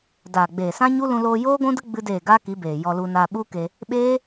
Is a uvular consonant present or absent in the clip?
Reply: absent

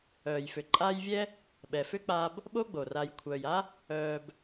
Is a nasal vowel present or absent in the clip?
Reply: absent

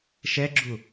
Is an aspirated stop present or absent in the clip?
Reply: absent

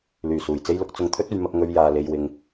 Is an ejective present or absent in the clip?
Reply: absent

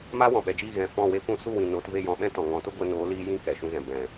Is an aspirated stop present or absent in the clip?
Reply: absent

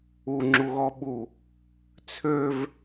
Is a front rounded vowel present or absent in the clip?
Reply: present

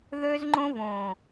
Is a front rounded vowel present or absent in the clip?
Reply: present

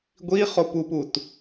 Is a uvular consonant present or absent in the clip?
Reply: present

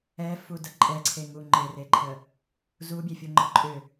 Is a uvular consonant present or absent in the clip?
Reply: absent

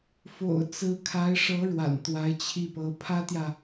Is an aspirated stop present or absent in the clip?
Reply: present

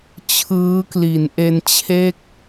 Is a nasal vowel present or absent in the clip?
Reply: absent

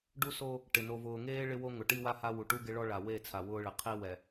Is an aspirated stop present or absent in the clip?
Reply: present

